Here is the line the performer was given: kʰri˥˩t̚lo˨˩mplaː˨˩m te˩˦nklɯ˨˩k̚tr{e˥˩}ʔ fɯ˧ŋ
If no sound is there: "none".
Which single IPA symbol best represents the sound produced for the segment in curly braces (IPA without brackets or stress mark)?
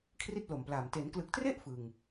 e˥˩